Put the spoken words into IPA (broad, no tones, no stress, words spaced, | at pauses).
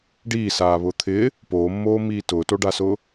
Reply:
ɖiːsaːβʊː t̪ʰɪː | poːmːoːmiː tʊːtoɖasʊː